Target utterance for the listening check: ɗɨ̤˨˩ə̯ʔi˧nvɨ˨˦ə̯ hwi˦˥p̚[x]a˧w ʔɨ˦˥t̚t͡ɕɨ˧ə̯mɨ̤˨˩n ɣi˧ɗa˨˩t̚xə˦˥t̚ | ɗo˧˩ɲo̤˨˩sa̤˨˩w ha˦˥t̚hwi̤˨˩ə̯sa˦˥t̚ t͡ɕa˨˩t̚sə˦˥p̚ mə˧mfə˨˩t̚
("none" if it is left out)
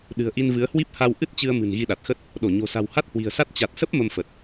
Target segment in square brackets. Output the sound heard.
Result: h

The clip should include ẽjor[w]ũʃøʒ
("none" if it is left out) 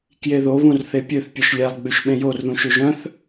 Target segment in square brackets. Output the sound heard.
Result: ð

